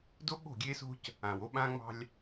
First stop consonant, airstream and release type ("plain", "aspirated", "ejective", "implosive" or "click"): plain